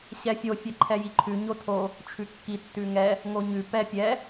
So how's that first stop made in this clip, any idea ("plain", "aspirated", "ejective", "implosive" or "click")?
click